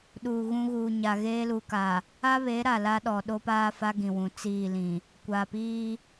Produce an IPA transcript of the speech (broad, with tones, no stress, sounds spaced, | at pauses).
ɗ uː˨ ɣ ũ˦ ɣ uː˨ ɲ a˨ ɣ eː˦ l u˨ k a˨ | a˦ β e˨˦ ɾ a˨ l a˦ ɗ ɔ˨ ɗ o˦ p aː˦ f a˦ ɡ ĩ˨ w ũ˨ t͡s iː˦˨ l ĩ˨ | kʷ aː˨ p iː˦